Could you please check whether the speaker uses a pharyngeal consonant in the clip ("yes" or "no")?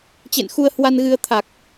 no